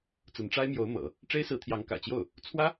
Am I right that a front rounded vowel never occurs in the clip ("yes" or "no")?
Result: yes